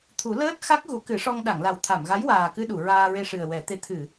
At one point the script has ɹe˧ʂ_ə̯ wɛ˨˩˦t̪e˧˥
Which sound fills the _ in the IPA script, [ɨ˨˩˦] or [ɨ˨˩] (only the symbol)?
ɨ˨˩